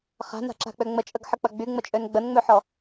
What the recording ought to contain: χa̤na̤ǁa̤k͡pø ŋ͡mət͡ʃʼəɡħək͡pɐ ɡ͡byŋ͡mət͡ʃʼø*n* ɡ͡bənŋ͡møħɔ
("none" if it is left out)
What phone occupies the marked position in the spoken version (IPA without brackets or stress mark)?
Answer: n